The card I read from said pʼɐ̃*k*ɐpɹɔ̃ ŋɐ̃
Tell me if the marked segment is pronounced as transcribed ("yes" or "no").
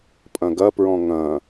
no